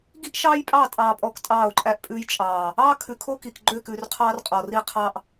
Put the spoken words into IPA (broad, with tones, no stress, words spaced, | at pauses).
ɡi˦ʔʃɑː˦j pʼɑ˦˨ tʼɑː˨pʼɔ˨k tʼɑː˦˨o̯ǃʼæ˦ʔpʼʉː˦j t͡ʃʼɑː˨ | ɑː˦ kʰʉ˨kʰo˦ki˨k ɡ͡ǃø˦˨kʉː˨rqʰɑː˦r qʼɔ˨ri˦qʰɑ˦ʔ